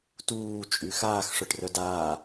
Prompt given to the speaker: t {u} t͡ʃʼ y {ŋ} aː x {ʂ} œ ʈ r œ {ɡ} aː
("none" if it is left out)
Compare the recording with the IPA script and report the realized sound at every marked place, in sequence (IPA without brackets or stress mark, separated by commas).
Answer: uː, x, ʂ, d